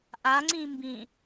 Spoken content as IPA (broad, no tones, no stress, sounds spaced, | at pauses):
ʔ a ŋ͡ǀ ĩ m b ĩ